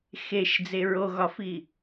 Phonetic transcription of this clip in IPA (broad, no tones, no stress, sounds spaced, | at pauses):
x e ʃ d͡z e ɹ o ɣ ɒ f i